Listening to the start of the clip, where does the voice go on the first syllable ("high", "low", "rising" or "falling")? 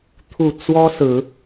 low